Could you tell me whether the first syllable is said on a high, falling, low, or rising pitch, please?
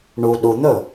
low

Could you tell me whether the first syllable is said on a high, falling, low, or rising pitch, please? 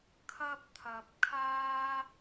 high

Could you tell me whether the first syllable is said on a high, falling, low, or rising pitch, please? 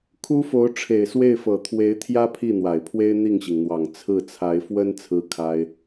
high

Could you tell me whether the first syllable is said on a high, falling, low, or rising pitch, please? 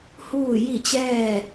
falling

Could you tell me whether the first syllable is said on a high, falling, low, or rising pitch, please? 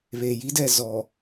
low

